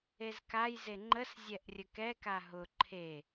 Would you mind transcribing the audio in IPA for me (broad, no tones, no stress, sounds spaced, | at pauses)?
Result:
e z k a j z e ŋ͡ǃ ə s zʲ ɛ ʔ rʲ ə k ɛ k a ɦ ʊ ǃʰ e